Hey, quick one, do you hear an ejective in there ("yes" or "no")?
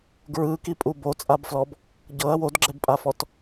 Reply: yes